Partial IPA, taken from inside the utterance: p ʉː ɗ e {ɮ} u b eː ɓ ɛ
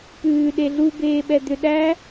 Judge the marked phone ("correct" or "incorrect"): correct